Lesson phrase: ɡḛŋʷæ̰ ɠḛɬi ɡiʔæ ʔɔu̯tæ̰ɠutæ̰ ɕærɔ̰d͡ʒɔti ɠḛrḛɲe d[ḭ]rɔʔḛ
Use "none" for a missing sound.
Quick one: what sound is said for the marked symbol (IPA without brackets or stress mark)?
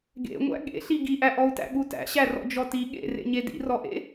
ḭ